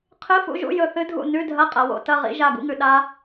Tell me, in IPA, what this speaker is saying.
qʰ ɨ˧˥˧ f ṵ˧˥˧ ʒ ṵ˧˥˧ j ɵ˦˨ θ ɨ˦˥ dʱ ṵ˦˨ n ʉ˧˥˧ dʱ ɐ˧˥˧ qʼ ɐ˩˧ w o̰˦˥ t ɐ˧˥˧ ʁ ḭ˦˥ ʒ a˦˨ ɡ ṵ˦˥ ŋ ʉ˩˧ ɗ a˦˥

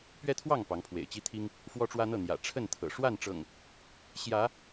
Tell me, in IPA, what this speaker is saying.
p ɥ ɛ˦ t̪ʰ w ɑ˥˨ ŋ p ɑ˨˦ ŋ pʰ w ḛ˨˩ ɪ̯ t͡ɕ i˦ t̪ʰ i˦ ŋ | f w ɔ˦ ʈ͡ʂ w ä˦ n̪ ɤ˥˨ n̪ j ä̰˨˩ ʈ͡ʂʰ ə˥˨ n t̪ʰ ɤ̰˨˩ ʂ w a˥˨ n ʈ͡ʂ ɤ̰˨˩ ŋ | ɕ j ä˨˦

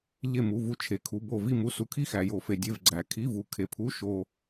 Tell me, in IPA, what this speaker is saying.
ʎ e˥˧ m u˧˥˧ v u˥˧ t͡ʃʰ e˧ kʰ u˧˥˧ b o˥˧ v i˥˧ m u˧˥˧ s u˧ kʰ i˥˧ x æ˧ j o˧ f e˧ dʲ e˧˥˧ v ɡ͡ǀ æ˧ kʰ i˧˥˧ v u˧ kʰ e˧ pʰ u˧˥˧ ʃ o˧

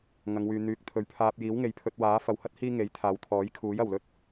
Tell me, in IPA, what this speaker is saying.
ŋ ɐ˨˧ ŋ w yː˨ n̪ yː˨˥ k̚ t̪ʰ ɵ˨˥ ɥ pʰ aː˧ p̚ j iː˨˥ w ŋ e˨ j pʰ ɵ˧ t̚ w aː˨˥ f ɐ˨˧ w h ɐ˥ t̚ h iː˥ ŋ e˨˥ j t̪ʰ aː˨˧ w t̪ʰ ɔː˨˥ j kʰ uː˨˥ j ɐ˨˩ w l ɵ˥ t̚

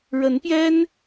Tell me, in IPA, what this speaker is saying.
ɻ ə˨˦ n p j ɛ˦ n

